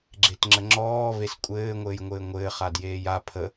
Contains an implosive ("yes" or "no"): no